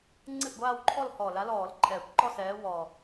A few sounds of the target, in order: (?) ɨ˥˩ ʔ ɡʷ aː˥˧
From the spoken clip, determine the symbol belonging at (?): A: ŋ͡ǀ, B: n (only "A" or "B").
A